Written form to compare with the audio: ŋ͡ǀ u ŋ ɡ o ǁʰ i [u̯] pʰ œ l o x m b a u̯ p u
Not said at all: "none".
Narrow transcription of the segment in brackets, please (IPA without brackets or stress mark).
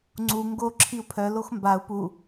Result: u̯